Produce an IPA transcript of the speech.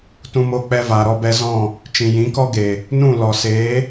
t ũ˧ m oː˧ k͡p ɛ˧ v aː˨ ɾ ɔ˧ b ɛ˧ z ɔ̃˦˨ | t͡ʃ ĩ˨ j ĩ˨˦ k ɔ˦ ɡ e˨ | n ũ˦˨ l ɔ˨ s eː˨˦

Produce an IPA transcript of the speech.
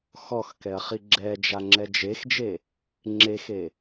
x ɔ x k ɛ ɐ̯ χ i ɡ͡ǁ ɛ d͡ʒ a ŋ͡ǁ ɛ d͡ʒ e x d͡ʒ e | ŋ͡ǁ e x e

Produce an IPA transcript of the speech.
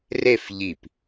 r e f ʎ i p

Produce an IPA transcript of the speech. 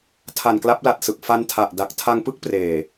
tʰ a˨˩ n k l a˦˥ p̚ l a˨˩ t̚ s ɯ˨˩ k̚ f a˧ n tʰ a˨˩ ʔ d a˨˩ k̚ tʰ a˧ ŋ p ɯ˥˩ k̚ p r eː˨˩

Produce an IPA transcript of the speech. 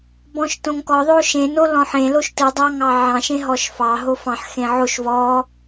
b ɔ̃ ʃ t õ ŋ k ɔ ðˤ o ʃ ẽ n o l ɔ̃ ħ ẽ l o ʃ t ɯ dˤ ɑ ŋ ɑ ʕ ɑ̃ ʃ ẽ ɦ ɔ ʃ f ɑ ɦ o f ɑ̃ ħ x ẽ ʕ o ʃ v ɔ

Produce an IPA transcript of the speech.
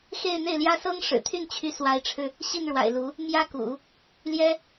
x e˥˧ ɪ̯ n̪ e˥˩ ɪ̯ l j ä˥ s ɤ˥ ŋ ʂ ɻ̩˨˩ t̪ʰ y˥˩ n t͡ɕʰ y˧˥ s w a˧˥ ɪ̯ ʈ͡ʂʰ ɻ̩˧ | ɕ i˥˩ n ɻ w a̰˨˩ ɪ̯ l u˧˥ | m j ä˥ k ṵ˨˩˦ | l j ɛ˥

